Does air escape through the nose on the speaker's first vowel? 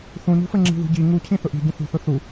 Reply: yes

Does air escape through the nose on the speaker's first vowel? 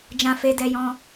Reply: yes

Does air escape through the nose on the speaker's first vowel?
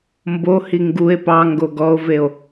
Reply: no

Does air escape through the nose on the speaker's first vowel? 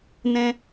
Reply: yes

